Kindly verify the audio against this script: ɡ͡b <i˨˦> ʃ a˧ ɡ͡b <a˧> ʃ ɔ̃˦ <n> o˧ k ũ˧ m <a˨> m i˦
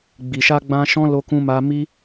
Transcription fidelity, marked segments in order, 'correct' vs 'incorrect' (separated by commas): incorrect, incorrect, incorrect, incorrect